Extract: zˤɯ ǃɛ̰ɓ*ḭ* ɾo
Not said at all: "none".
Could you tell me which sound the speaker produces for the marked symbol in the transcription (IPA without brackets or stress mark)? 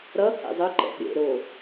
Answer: ḛ